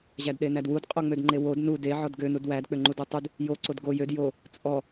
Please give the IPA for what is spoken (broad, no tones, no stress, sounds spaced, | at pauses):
ʑ æ d ɗ e n æ d w u d qʼ o ŋ͡m ø d ŋ͡ǃ e w o d n u d e ʕ ɔ d ɡ ø n u d w æ d k͡p ø ŋ͡ǃ u d u tˤ u d | j o ǀ o d ɡ o j ø d j o | t͡sʼ ɔ